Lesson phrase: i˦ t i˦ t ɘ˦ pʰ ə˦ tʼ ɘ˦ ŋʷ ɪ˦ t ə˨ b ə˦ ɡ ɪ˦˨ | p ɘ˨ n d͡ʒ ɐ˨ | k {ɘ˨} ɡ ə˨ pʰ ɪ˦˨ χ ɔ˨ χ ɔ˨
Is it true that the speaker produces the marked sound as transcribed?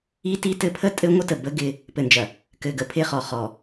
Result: yes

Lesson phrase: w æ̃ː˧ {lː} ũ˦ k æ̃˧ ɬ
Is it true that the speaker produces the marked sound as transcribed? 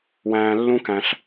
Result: yes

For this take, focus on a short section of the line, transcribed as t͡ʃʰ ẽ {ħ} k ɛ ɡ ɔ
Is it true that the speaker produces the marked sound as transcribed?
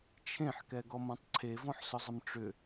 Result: yes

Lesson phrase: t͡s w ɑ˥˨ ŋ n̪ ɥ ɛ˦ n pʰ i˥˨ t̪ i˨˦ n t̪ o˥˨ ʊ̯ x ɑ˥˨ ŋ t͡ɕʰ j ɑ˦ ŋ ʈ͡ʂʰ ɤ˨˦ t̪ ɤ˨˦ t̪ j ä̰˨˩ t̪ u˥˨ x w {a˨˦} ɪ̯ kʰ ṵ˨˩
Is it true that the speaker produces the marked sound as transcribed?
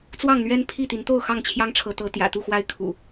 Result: no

